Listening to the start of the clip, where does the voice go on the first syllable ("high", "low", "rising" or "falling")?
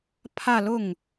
falling